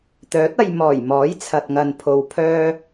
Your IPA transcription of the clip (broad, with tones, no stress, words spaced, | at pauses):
t̪œː˨˥t̚ ɐ˧j mɔː˨˩jmɔː˨˥j t͡sʰɐ˨t̚ŋɐ˨npʰo˨w pʰœː˧